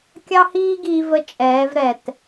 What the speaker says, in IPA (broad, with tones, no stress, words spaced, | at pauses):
kʲɑ˦hiː˦ɡiː˧və˧ t͡ʃʼɛː˨˦vɾɛ˨t